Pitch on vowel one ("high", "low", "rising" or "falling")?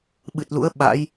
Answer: low